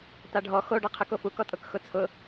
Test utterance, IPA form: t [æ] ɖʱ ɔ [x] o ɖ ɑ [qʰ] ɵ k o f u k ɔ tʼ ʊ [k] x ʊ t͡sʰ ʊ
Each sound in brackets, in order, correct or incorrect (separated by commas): incorrect, correct, correct, correct